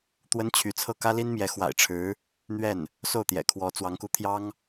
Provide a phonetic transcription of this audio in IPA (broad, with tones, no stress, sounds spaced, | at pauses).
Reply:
t̪ w ə˥ n t͡ɕʰ y˧˥ t͡sʰ ɤ˥˩ k ä˥ l i˥ n m j ɛ˧˥ x w a̰˨˩ ɪ̯ ʈ͡ʂʰ ɻ̩˧˥ | n̪ ɥ ɛ˥˩ n | s o˥˩ ʊ̯ t̪ j ɛ̰˨˩ kʰ w ɔ˧˥ t͡s w ɑ˧˥ ŋ k u˧˥ t̪ʰ j ɑ˥ ŋ